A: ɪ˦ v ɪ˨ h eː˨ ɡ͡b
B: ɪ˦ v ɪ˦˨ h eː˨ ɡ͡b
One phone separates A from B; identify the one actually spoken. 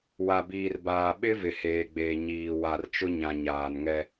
A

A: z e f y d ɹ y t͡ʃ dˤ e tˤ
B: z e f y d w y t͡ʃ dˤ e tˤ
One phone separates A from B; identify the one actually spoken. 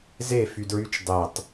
A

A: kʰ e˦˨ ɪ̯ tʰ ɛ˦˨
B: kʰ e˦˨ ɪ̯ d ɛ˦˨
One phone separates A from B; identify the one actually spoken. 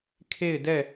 B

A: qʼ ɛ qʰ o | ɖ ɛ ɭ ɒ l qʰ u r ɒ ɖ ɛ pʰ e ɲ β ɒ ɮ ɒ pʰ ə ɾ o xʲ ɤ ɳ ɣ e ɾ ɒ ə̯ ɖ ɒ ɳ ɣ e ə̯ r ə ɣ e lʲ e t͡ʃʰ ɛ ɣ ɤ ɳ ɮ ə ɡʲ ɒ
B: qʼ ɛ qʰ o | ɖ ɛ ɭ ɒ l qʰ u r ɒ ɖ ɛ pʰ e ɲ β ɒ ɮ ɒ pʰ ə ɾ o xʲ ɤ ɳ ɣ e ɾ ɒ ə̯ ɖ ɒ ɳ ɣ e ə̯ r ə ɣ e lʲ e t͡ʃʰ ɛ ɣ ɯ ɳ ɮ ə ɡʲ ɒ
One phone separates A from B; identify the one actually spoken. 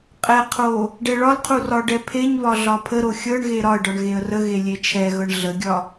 A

